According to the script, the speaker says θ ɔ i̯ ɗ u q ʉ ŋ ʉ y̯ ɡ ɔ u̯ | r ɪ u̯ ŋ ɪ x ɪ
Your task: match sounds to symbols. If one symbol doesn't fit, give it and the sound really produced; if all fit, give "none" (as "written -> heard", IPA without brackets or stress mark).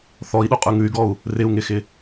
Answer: q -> qʼ